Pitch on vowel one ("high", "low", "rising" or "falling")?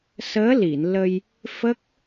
rising